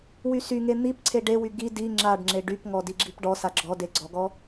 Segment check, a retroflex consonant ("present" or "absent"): present